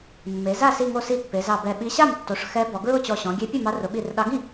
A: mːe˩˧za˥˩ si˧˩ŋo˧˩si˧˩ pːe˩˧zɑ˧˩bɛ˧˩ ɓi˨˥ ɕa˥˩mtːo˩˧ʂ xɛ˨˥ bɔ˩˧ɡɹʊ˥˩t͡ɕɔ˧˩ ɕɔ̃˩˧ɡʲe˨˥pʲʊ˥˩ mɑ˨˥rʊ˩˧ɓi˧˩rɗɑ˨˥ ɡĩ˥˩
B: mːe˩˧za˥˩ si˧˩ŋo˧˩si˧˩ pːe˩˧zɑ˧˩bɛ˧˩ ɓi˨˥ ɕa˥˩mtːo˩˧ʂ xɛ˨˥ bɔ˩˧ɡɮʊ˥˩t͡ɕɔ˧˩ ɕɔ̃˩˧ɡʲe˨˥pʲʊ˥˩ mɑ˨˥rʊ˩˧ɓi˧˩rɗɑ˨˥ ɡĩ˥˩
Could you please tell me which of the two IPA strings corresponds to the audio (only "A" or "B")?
A